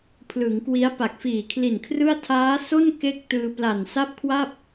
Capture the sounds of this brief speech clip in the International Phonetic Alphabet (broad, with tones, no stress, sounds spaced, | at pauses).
pʰ l ɯ˩˦ ŋ k w i˦˥ a̯ p a˨˩ k̚ f iː˨˩ kʰ l i˨˩ n kʰ r ɯ˥˩ a̯ tʰ aː˦˥ s o˥˩ n k e˥˩ k̚ t ɯː˧ p l a˨˩ n s a˥˩ p̚ kʰ w a˥˩ p̚